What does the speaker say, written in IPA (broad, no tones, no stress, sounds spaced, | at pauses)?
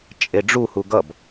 t͡ʃʼ e ɖ͡ʐ u h u ɡ ʌ b